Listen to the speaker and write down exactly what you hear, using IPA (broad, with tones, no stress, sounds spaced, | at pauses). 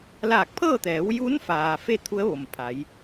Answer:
l aː˧˩ k̚ pʰ ɤː˥˨ t̪ ɛː˩˧ w j uː˧˥ n f aː˩ f e˥˨ t̪ʰ u˧˥ ə̯ ʋ o˩ m pʰ a˩˧ j